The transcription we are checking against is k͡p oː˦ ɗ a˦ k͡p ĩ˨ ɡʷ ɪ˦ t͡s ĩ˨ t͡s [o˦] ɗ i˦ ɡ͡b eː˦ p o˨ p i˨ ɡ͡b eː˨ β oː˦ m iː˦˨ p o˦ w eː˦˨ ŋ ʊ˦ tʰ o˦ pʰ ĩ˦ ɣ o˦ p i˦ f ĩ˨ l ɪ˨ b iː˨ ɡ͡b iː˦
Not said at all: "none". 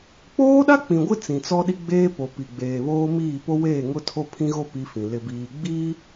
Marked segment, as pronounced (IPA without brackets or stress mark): ɔ˦